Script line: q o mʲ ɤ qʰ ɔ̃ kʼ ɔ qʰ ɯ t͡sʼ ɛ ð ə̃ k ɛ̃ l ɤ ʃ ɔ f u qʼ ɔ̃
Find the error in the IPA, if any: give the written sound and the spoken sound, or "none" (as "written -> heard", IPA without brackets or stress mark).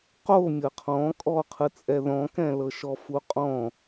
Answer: ə̃ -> ɔ̃